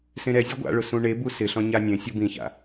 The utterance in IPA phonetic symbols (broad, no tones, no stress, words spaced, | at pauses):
sẽɾɛzʲʊ ɡʷa̰ɭʊ sũɳebu sɪɬɔ̃ ɲanʲẽsʲʊ bĩça̰